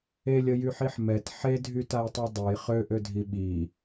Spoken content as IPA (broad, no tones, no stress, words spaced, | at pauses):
elʲəjyħiħ mɛt ħedʱytajtˤø dˤuj χøʔødʱi ɓi